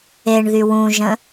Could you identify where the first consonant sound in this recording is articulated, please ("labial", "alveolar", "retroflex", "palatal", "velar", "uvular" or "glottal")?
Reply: retroflex